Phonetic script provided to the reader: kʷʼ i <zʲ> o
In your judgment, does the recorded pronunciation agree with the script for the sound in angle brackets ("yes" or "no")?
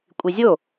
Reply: yes